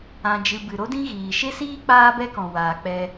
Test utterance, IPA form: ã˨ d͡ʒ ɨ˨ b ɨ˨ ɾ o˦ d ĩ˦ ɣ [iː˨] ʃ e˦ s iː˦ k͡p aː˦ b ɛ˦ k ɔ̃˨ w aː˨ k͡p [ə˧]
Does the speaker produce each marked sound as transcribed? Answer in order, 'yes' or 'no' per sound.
yes, no

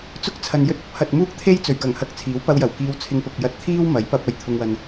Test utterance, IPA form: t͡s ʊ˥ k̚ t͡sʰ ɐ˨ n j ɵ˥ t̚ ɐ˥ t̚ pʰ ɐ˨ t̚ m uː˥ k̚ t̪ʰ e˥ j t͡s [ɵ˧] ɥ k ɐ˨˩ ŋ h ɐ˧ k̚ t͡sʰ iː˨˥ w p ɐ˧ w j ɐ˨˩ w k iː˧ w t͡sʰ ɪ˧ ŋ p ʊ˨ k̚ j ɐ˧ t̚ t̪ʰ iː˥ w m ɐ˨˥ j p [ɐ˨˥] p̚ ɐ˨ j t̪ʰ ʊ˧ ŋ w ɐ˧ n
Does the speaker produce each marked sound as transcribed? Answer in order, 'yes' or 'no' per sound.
no, no

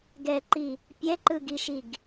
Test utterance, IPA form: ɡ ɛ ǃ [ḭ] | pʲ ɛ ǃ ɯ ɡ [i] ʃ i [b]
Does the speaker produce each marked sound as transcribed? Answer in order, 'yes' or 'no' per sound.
no, yes, no

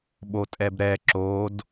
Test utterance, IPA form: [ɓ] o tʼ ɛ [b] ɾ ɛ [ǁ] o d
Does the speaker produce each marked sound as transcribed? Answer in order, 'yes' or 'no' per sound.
yes, yes, yes

